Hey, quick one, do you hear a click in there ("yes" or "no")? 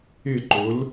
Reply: yes